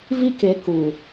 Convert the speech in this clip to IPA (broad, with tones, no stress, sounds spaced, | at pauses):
v i˦ k e˨˦ k u˨